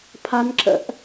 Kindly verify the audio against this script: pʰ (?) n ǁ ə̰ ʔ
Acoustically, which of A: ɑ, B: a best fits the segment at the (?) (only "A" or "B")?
B